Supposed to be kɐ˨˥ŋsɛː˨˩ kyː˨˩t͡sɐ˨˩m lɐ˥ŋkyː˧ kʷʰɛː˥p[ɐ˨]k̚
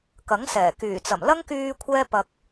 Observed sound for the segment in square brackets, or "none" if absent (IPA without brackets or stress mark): ɐ˧